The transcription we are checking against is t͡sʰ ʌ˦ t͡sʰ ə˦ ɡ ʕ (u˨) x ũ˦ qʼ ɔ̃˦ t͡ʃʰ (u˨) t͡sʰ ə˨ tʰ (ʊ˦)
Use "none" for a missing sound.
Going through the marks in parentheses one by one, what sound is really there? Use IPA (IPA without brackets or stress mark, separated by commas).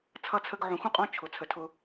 ũ˨, ʊ˨, ʊ˦